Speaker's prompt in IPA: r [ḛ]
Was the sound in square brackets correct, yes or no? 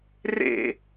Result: yes